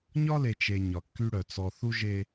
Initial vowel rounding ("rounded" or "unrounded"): rounded